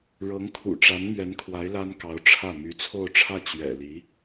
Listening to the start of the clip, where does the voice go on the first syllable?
rising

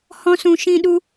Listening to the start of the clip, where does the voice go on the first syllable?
high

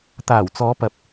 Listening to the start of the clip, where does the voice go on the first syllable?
low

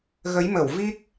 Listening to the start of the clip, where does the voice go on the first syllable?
rising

